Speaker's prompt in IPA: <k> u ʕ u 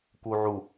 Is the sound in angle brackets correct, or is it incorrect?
correct